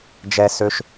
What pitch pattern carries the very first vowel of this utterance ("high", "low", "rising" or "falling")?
high